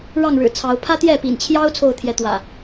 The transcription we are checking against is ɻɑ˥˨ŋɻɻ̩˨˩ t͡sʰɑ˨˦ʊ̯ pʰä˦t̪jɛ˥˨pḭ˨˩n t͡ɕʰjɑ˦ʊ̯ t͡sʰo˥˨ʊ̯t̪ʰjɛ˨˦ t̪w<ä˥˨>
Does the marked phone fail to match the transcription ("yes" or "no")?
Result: yes